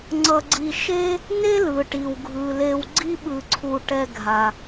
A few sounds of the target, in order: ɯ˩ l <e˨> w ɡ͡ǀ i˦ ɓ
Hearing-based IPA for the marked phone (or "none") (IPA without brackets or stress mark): e˨